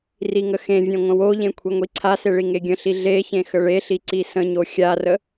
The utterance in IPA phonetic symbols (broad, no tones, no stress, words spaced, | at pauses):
riŋəxẽvʲẽ ŋʷə̃woʎẽ kʷʰiŋʷiǀʰase ɭiŋeɡʲə̃ɬi ɮeçẽ xəɭeɬi ǀisə̃ɲo xʲarə